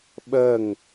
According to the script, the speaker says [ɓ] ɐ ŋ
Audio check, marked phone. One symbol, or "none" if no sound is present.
ɓ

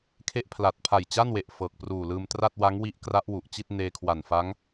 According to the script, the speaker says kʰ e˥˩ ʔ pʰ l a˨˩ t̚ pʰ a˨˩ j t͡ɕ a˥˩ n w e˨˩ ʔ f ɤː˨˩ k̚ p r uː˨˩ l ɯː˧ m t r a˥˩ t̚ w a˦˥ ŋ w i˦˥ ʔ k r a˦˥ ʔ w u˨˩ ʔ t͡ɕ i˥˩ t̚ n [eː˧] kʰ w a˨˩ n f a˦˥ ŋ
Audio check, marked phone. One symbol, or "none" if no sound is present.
eː˧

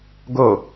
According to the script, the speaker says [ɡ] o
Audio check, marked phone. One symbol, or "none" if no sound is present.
ɡ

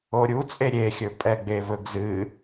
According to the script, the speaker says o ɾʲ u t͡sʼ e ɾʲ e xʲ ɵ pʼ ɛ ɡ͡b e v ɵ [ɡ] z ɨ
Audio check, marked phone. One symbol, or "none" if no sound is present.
ɡ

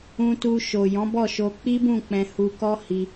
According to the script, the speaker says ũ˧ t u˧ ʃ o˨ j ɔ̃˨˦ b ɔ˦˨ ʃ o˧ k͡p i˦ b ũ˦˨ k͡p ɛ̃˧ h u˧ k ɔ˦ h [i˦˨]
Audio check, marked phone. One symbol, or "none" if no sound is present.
i˧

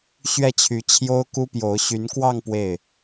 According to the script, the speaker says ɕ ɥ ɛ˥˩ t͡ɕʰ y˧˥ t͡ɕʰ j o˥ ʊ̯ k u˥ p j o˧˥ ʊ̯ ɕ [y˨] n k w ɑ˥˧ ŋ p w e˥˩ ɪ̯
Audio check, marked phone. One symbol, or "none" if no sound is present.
y˧˥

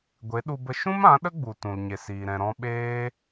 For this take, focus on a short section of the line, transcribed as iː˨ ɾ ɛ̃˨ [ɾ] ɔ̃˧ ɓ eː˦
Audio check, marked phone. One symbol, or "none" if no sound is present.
ɾ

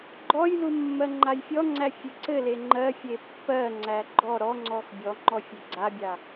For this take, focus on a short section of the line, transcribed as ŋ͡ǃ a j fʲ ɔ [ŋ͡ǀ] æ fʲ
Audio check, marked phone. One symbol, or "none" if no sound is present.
ŋ͡ǀ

